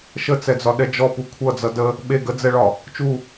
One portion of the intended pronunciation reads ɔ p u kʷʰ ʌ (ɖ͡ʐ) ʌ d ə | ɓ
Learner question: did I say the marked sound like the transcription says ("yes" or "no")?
no